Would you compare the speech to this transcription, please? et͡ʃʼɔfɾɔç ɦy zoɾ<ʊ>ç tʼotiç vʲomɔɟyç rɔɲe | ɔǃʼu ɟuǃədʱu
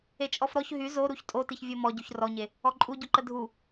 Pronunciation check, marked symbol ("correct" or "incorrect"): incorrect